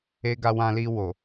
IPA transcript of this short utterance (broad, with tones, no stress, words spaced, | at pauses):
e˧ɡa˧wã˧li˧ wo˨